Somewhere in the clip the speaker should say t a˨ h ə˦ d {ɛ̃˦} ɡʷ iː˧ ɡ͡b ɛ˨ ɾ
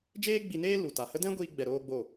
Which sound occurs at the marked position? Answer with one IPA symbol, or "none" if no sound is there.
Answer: ɛ̃˦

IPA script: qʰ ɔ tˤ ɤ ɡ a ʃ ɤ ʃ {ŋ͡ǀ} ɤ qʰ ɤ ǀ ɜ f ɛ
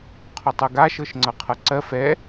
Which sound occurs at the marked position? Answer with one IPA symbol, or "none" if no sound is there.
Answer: ŋ͡ǀ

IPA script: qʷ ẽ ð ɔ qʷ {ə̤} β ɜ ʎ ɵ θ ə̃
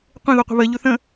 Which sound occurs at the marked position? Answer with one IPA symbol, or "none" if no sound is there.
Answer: ə̤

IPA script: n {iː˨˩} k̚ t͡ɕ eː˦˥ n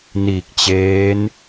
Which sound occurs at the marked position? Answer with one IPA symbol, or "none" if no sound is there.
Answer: iː˨˩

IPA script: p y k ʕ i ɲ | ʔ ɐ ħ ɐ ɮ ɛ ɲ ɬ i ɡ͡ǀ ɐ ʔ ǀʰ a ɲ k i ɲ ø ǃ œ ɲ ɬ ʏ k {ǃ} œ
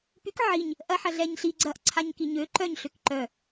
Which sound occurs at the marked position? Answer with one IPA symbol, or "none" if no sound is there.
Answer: ǃ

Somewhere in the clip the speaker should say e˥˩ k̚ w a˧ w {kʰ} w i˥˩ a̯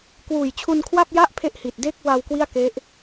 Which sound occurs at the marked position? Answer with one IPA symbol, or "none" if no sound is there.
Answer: k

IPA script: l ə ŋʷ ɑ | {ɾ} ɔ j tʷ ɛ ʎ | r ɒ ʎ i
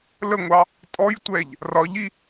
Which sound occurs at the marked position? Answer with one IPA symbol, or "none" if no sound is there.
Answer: tʼ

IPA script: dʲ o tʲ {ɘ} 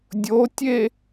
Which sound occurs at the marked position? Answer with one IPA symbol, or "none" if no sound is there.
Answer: e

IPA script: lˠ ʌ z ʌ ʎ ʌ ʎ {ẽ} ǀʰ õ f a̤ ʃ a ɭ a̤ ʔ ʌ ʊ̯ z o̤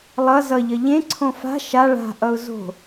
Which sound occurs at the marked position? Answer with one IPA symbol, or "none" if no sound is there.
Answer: ẽ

